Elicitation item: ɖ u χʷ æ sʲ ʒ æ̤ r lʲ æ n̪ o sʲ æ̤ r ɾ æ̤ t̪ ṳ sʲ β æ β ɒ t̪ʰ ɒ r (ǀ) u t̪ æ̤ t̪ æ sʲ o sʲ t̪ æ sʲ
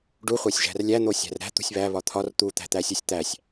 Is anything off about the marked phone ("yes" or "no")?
yes